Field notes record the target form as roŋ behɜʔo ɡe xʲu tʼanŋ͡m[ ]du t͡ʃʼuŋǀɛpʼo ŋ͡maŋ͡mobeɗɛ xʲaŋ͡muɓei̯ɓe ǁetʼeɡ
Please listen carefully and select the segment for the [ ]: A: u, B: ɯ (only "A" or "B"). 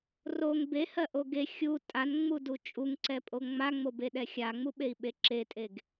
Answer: A